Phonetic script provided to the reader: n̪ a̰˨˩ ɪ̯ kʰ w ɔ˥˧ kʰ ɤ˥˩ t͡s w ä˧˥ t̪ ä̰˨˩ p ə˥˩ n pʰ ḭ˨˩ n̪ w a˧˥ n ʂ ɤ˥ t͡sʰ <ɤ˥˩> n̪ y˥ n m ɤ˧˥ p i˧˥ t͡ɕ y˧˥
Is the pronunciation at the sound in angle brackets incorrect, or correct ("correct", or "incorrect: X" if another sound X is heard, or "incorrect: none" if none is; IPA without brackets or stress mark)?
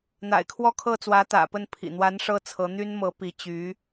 incorrect: ɤ˧˥